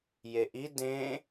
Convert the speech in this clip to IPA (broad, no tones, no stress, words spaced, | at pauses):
jeʔi dẽ